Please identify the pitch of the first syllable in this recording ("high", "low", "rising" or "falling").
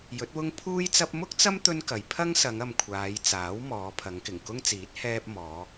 rising